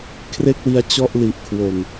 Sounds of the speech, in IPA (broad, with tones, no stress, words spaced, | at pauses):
kʰre˥˩k̚wi˧a̯ t͡ɕɔ˥˩ʔ li˨˩ʔkʰwo˨˩n